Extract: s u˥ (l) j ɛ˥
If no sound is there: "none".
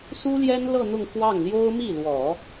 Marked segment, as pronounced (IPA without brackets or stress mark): l